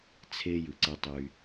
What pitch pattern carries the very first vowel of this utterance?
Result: high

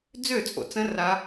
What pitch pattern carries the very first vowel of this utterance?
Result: falling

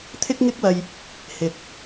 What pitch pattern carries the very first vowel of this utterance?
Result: high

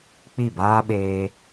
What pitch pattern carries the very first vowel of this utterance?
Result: falling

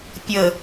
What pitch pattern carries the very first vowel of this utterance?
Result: low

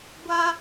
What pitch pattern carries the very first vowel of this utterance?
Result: high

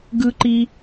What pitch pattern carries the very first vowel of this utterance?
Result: high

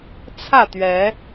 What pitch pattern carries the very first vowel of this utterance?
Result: falling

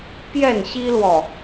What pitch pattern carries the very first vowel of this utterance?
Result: falling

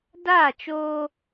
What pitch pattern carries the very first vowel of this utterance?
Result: falling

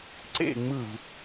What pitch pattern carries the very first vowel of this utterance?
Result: falling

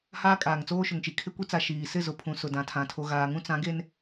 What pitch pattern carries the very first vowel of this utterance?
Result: high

